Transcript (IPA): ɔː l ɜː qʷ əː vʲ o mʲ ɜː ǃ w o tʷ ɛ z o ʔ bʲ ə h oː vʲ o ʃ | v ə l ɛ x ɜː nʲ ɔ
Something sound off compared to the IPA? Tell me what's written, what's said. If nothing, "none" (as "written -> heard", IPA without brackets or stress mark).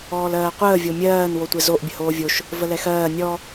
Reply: ǃ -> n